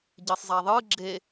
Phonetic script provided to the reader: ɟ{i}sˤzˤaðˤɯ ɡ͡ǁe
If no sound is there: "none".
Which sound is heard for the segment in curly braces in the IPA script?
i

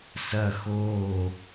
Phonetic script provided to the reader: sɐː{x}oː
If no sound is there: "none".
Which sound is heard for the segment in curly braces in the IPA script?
x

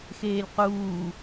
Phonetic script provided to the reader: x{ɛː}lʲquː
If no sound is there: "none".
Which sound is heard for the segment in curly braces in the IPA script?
eː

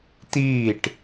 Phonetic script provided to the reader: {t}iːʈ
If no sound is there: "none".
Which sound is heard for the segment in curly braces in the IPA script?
t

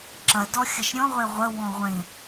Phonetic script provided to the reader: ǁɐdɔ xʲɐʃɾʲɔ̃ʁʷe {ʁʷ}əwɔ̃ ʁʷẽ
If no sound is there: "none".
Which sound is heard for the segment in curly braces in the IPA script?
ʁʷ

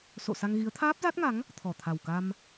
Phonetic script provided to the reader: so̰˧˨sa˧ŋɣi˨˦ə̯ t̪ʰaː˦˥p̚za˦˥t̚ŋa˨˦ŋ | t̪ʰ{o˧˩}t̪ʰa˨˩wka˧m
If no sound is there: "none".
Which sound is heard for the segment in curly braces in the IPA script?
ɔ˧˩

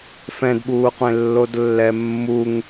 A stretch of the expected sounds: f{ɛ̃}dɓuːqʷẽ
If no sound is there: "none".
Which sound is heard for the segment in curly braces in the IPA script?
ɛ̃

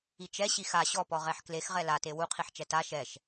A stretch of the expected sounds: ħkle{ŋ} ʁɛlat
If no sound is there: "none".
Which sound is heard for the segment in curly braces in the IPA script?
x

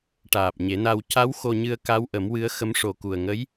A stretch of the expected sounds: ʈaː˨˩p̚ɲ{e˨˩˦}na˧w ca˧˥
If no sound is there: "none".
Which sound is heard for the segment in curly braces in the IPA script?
e˨˩˦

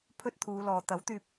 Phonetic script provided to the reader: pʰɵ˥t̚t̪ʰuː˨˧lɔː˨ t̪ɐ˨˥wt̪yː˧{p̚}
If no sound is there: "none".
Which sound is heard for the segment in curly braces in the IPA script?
p̚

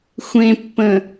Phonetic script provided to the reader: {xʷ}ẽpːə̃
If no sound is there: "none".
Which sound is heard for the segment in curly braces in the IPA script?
xʷ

